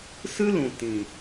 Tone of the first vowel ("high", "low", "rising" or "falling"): high